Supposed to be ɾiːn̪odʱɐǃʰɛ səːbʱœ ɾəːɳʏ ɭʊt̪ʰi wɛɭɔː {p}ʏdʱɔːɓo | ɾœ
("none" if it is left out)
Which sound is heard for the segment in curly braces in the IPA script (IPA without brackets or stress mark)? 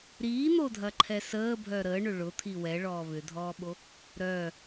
β